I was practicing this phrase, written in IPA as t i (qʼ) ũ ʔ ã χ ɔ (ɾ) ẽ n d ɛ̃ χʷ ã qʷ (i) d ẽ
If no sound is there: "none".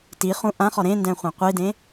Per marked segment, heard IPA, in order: χ, ɾ, i

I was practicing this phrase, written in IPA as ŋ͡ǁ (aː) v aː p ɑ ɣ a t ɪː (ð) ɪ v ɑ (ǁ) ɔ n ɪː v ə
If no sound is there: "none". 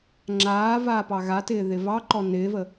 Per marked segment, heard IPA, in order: aː, ð, ǃ

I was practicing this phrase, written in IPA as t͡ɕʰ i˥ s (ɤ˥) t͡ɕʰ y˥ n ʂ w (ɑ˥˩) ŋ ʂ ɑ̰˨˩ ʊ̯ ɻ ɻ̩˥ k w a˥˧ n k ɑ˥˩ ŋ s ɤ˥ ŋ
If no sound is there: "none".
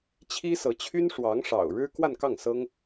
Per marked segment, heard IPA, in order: ɤ˧˥, ɑ˧˥

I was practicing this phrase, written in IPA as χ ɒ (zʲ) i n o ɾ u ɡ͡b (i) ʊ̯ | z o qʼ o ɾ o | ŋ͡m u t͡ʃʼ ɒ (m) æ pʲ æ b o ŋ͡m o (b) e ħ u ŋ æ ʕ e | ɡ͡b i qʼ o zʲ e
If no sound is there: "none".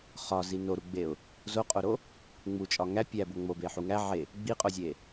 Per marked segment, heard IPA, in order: z, e, ŋ, b

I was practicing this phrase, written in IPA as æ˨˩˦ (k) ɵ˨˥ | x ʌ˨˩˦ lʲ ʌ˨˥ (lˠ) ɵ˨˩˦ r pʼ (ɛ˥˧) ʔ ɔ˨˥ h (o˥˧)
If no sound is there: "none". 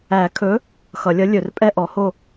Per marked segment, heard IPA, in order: kʰ, lʲ, ɛ˥˧, o˥˧

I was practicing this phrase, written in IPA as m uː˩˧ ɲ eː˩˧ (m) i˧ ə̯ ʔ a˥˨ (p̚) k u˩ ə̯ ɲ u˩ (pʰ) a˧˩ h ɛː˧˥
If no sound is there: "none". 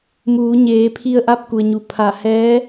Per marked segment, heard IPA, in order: pʰ, p̚, pʰ

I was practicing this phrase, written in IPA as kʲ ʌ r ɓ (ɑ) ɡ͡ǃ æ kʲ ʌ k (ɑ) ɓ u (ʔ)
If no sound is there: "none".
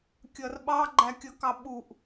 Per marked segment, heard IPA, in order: ɑ, ɑ, ʔ

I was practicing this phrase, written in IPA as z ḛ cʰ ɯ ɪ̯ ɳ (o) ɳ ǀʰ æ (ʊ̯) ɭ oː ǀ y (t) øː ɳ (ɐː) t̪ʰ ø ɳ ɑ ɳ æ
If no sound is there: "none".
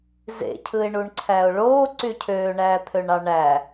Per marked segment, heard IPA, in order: u, ʊ̯, cʰ, æː

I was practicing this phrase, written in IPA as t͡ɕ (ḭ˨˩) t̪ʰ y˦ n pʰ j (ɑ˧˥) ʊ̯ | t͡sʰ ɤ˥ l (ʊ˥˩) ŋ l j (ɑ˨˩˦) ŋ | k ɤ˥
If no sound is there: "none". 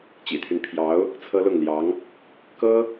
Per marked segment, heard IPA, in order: ḭ˨˩, ɑ˧˥, ʊ˥˩, ɑ˧˥

